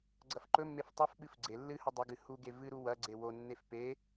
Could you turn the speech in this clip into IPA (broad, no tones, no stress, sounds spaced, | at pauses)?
ɡ͡ǀ ɐ f ǃ ɵ mː e f tˤ ɵ f ɓ ɨ f ɡ͡ǀ e lː ɨ h ɵ dˤ ɐ ɡ ɨ h u ɡ e v ɨ ɾ u w ɐ ɡ͡ǀ e w o nː e f p e